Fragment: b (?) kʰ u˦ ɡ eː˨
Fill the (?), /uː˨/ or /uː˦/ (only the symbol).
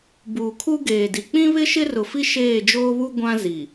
uː˨